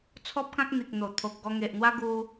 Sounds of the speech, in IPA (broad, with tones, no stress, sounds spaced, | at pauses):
t͡sʰ ɔ˦ p̚ k ã˦ k̚ n̪ i˨ k̚ n̪ o˨˩ t̪ʰ o˨ k̚ ɡ ɔ˧ ŋ e˨ ʔ n̪ w a˦ ɡ u˧